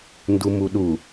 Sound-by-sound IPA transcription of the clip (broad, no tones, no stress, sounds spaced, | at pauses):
n d u m u ɗ u